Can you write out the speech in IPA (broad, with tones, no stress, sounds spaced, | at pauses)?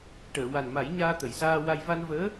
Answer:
ʈ əː˨˩˨ w a˨˩ n m a˨˩˦ j ɲ aː˧ t̪ ə˨˩˨ j s aː˧ w a˧ j v a˧ n v əː˧˥